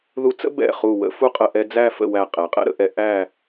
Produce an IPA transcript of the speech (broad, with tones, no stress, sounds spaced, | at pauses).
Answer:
ð u˧ t͡s ə̰˥ b ɛ̰˧˩ χ u˧˩ w ə̰˥ f u˥ qʼ ə˧ ʔ ɛ˧ d͡z æ˥˧ f ə̰˥˧ w æ˧˩ qʼ ɛ˩˧ qʼ ɛ̰˥ ɾ ə̰˩˧ ʔ ɛ˧ ʔ æ˥˧